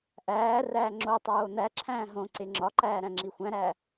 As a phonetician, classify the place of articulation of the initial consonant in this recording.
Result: glottal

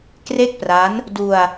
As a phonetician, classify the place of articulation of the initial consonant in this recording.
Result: velar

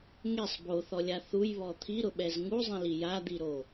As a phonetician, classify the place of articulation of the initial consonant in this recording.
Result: velar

